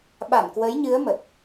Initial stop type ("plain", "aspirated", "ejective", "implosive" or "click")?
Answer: implosive